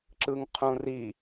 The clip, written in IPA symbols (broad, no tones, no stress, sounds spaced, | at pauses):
ǁ ɯ ŋ qʰ ũ r i